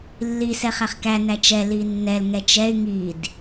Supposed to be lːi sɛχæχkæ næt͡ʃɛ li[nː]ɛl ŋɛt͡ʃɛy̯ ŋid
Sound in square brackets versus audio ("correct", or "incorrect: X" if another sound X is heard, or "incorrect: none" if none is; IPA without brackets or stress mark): correct